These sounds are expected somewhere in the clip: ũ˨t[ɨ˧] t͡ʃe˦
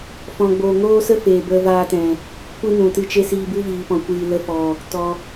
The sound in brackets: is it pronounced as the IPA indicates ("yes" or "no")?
no